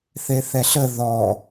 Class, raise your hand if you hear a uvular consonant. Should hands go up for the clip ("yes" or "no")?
no